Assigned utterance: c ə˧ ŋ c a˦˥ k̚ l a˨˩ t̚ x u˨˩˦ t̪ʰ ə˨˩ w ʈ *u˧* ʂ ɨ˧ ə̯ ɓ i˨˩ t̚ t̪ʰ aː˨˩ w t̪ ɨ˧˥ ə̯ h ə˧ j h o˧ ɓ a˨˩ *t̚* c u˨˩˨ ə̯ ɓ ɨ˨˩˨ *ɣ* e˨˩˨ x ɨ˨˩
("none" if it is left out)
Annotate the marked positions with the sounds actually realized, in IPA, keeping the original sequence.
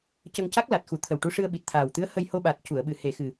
u˧, t̚, h

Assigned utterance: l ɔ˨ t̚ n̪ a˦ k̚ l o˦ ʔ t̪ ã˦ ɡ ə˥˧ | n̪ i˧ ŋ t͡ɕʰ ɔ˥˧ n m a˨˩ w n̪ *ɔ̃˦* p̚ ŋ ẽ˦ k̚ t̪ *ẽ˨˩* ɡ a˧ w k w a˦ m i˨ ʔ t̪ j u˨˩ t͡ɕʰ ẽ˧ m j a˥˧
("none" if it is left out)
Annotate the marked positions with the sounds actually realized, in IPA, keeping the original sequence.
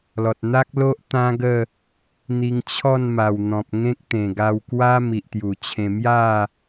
ɔ̃˨, ẽ˨˩

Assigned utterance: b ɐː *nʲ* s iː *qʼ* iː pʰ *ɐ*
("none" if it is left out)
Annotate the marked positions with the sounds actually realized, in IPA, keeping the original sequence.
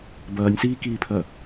nʲ, k, ɐ

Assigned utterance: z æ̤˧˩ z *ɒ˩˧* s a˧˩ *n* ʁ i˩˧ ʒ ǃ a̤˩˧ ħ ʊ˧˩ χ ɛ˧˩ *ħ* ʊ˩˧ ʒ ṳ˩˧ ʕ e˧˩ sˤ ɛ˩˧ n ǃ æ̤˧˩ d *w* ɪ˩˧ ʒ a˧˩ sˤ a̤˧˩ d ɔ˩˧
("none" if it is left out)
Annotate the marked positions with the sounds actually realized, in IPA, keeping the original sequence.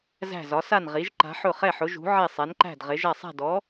ɒ˩˧, n, ħ, ʁ

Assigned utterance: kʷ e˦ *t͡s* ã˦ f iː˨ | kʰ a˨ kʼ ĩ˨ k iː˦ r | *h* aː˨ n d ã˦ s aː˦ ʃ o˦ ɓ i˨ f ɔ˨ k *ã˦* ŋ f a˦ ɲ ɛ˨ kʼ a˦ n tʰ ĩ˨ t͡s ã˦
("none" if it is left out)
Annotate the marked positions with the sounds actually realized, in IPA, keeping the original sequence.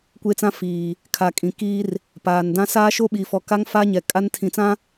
t͡s, p, a˦

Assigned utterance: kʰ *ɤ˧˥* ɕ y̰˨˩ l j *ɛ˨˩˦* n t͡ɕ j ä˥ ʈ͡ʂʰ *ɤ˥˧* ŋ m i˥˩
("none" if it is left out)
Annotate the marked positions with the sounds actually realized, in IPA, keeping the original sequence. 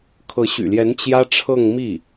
ɤ˧˥, ɛ˧˥, ɤ˥˧

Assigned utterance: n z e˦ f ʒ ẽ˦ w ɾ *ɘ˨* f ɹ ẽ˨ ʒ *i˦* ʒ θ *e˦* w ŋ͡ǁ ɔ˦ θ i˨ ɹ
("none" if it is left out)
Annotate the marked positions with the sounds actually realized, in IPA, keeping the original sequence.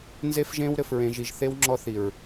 ɘ˨, i˨, e˦

